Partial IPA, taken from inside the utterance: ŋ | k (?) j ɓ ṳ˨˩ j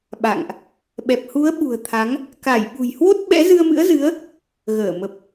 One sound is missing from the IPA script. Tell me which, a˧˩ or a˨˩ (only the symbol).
a˧˩